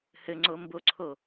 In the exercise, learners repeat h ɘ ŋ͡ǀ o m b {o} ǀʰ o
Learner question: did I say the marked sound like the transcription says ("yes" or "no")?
yes